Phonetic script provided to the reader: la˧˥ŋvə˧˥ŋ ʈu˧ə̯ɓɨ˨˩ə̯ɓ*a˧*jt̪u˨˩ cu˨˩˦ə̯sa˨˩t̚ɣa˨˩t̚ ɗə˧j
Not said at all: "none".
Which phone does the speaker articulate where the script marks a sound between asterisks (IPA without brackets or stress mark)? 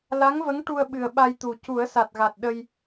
a˧